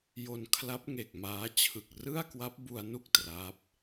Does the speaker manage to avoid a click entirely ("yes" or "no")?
yes